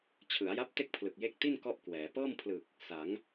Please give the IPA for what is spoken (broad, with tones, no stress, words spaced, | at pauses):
t͡ɕʰɯ˩˦a̯ja˦˥p̚ te˥˩k̚pʰlɯ˨˩k̚je˦˥k̚ ti˥˩n kɔ˥˩ʔkwɛː˩˦ pɤː˥˩mpʰlɯ˨˩k̚ | sa˩˦ŋ